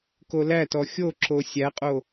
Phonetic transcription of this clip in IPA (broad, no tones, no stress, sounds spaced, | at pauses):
k o l æ t ɔ xʲ o ǁ o sʲ æ qʼ o